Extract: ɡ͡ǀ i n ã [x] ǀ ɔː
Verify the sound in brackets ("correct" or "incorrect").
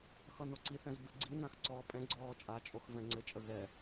correct